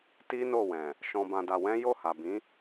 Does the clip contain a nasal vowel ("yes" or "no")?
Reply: yes